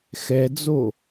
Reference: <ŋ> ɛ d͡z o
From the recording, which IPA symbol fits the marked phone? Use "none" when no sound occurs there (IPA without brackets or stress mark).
x